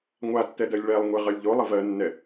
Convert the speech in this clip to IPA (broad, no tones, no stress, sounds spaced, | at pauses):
ŋʷ a tː ɛ d ɜ lʲ ɭ ɛ lˠ ŋʷ e ʁ ɜ lʲ ʎ o lˠ ə v ɜ nː ɛ